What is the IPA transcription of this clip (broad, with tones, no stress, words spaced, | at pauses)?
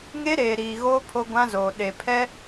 ŋe˦ɾeː˨ɾiː˨ɣoː˦ pʰo˦ɡʷã˦zoː˨ ɗe˨pʰɛ˦